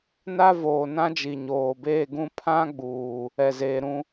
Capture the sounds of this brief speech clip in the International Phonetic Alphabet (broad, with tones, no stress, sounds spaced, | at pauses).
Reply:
n a˦ v oː˨ n ã˦ d͡ʒ i˨ ɲ oː˨ b eː˦˨ ɡ ũ˦ pʰ ã˦ ɡ͡b uː˨ | ɛ˨ z eː˨ ɾ ũ˦